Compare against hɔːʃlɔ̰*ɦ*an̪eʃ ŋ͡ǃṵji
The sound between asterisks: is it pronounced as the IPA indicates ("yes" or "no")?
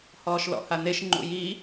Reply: no